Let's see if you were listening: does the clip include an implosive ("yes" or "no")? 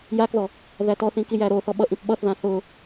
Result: yes